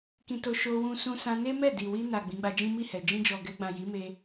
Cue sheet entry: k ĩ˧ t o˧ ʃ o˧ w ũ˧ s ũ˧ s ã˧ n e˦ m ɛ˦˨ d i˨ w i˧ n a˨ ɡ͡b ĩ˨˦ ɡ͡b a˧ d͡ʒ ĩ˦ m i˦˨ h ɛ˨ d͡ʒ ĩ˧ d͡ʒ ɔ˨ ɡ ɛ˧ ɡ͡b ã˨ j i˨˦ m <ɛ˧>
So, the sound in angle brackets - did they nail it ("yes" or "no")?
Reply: no